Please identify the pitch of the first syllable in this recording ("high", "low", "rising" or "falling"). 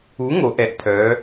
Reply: rising